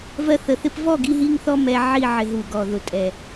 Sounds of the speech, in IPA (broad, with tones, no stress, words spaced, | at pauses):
vɜ˧θə˨˩θɪ˥˨p vɔ˥˨ɡi˧ɦi˧ŋθɔ˧ mɛ˧ʕi˥˨ ʕɪ˧˩˧ɦu˨˩ɡɔ˨˩ðʊ˨˩ tʼɛ˨˩